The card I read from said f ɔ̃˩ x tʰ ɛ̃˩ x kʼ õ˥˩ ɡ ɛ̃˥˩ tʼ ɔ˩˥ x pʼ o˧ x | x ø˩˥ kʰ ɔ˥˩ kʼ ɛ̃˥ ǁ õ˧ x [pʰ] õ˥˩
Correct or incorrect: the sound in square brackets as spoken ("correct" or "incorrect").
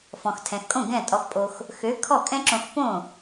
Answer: incorrect